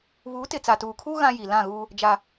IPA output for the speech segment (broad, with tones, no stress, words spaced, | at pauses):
βuː˨˦tɪ˨ t͡sa˨tuː˨kʰuː˦ ɣã˦ji˨ lã˦˨ɣuː˦ | d͡ʒa˦